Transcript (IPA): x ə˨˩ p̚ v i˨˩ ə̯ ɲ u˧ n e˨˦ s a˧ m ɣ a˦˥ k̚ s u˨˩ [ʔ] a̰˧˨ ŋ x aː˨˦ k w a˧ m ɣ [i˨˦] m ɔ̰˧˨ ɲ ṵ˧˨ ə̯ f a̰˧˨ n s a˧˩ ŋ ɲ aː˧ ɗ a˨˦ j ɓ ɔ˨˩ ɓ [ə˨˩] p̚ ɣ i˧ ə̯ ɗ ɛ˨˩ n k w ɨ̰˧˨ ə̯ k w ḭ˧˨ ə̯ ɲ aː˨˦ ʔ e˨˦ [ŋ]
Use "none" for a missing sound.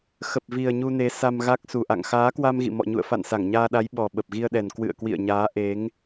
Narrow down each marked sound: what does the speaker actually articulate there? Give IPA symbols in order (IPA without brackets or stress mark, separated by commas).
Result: ʔ, ḭ˧˨, ə˨˩, ŋ